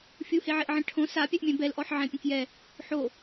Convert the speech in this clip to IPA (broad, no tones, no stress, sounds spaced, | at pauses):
fʲ u h e ʕ e ʔ ʕ ɛ̃ ʈʰ õ s a pʲ ɛ ʔ mʲ ɛ̃ b ɛ l ʔ ɔ ħ ʕ ɛ̃ pʲ ɐ̃ k j ɛ | ħ o